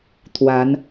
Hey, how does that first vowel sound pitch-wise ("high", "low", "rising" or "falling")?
rising